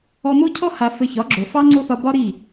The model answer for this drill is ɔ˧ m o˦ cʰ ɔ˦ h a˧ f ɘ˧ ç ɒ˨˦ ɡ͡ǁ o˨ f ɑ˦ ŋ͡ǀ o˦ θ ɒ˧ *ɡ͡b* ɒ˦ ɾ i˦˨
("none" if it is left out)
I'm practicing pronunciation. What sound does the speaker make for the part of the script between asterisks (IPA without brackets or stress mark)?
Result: b